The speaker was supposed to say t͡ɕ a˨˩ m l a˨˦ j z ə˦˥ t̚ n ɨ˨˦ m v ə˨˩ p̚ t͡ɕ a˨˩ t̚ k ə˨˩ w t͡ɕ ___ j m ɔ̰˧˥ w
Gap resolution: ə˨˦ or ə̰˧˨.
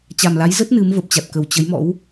ə˨˦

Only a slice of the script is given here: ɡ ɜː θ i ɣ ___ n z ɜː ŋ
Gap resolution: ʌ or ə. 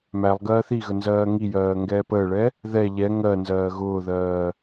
ə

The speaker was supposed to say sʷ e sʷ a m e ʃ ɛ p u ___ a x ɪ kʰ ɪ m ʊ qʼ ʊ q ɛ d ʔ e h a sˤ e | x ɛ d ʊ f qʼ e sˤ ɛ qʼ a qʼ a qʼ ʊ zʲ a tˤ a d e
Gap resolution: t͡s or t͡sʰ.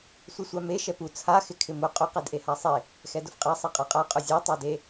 t͡sʰ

